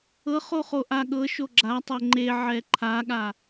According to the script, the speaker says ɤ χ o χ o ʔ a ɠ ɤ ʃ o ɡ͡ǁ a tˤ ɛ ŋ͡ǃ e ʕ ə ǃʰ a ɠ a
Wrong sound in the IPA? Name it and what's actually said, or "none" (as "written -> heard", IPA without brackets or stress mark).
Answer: ə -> ɛ